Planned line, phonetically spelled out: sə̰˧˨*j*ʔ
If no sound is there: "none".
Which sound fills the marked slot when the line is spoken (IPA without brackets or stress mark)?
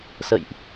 j